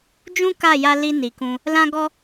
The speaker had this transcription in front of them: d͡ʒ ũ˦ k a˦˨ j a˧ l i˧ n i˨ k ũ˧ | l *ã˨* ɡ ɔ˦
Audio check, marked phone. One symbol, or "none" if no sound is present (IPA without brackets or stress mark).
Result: ã˦